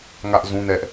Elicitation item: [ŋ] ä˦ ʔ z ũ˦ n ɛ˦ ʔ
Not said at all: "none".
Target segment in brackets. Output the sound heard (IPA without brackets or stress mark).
ŋ